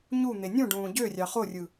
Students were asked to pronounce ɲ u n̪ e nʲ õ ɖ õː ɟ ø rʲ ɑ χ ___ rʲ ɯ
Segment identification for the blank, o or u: o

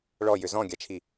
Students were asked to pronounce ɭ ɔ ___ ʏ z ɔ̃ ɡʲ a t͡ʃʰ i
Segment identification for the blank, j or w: j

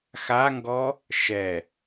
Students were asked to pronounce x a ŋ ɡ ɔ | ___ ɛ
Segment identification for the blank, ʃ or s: ʃ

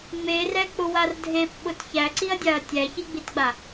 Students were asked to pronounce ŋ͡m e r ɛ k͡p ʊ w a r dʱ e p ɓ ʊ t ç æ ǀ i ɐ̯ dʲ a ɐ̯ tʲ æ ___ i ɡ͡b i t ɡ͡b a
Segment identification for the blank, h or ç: ç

